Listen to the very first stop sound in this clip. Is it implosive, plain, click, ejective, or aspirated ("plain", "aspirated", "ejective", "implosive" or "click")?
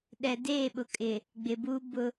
implosive